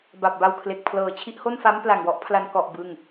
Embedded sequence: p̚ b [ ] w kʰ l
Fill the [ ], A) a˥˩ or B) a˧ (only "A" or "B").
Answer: B